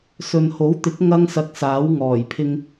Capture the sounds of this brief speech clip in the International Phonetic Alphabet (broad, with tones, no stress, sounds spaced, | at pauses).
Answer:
s ɵ˨ n h o˨˥ w t̪ ɪ˨˥ k̚ ŋ ɐ˥ ŋ s ɐ˧ k̚ s aː˨˥ w ŋ ɔː˨˩ j pʰ ɪ˧ ŋ